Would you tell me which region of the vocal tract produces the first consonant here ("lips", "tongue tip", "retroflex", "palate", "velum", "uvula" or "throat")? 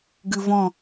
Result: velum